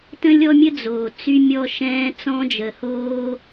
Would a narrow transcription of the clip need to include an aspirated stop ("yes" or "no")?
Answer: no